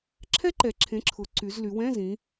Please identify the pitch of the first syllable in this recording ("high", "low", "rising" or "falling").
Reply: high